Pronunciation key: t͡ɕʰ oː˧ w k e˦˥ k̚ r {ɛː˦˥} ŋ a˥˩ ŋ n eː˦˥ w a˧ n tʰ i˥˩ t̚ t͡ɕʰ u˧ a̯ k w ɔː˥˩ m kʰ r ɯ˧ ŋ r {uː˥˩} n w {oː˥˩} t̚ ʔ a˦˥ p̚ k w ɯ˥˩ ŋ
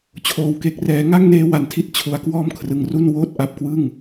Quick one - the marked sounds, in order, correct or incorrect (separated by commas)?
correct, incorrect, correct